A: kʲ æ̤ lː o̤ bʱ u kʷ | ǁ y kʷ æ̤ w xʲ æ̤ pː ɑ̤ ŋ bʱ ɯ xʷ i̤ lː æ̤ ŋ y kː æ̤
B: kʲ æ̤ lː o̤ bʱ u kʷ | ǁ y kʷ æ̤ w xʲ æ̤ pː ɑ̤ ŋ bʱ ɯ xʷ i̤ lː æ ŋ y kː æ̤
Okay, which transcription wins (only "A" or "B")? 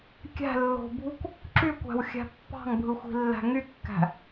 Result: A